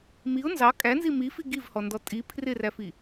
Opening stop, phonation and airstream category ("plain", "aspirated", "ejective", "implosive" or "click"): ejective